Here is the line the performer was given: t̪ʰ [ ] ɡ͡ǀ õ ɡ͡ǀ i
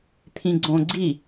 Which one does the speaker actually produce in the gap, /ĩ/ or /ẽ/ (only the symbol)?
ĩ